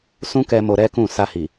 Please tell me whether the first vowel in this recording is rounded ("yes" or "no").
yes